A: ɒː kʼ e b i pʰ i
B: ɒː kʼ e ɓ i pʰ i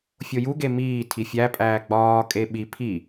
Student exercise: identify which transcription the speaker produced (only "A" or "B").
B